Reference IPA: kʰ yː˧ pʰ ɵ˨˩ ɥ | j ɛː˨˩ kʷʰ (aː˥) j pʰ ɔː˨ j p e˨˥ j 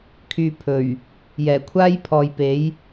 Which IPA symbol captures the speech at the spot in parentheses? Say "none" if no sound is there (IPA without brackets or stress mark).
aː˥